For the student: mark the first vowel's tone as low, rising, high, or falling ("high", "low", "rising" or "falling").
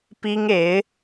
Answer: high